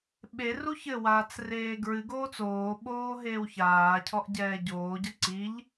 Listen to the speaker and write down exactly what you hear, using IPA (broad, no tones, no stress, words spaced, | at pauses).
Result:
ɓeru çɘwaːt͡s reːɡɹɨɡoːt͡s oːɓoː ɦeːwçaːcʰɔʔ ɟɛːɟoːɟɐ ǀiʎ